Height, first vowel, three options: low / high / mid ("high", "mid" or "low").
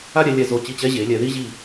low